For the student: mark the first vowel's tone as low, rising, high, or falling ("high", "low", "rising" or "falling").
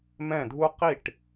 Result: falling